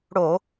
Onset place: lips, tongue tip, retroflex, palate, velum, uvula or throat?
retroflex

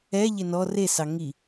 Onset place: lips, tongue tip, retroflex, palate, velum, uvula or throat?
palate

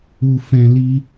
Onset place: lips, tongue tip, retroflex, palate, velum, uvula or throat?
lips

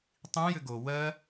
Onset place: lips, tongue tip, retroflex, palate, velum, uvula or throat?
tongue tip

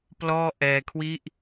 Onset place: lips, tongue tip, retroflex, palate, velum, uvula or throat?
lips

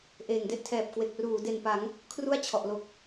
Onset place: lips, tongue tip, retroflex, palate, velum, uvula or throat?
throat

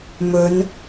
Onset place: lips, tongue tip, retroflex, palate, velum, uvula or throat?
lips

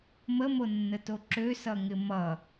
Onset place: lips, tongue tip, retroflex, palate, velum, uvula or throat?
lips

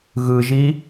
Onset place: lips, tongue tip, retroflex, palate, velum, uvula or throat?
velum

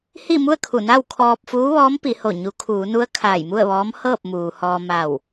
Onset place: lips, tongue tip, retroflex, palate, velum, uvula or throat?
throat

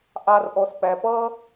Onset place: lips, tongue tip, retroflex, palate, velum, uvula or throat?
throat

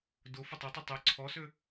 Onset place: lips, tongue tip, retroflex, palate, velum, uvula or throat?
tongue tip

